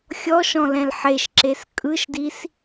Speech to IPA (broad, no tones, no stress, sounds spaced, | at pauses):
xʲ ɔ ʃ ɔ̃ l ɛ̃ l ħ e ʃ ǁ e s kʼ ɯ ʃ d i s